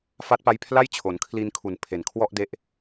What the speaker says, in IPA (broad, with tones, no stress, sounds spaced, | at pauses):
f a˦˥ t̚ p a˦˥ j pʰ l a˥˩ j t͡ɕʰ o˩˦ n kʰ l i˧ n kʰ u˨˩ n pʰ e˨˩ n kʰ w ɔ˥˩ ʔ d e˦˥ ʔ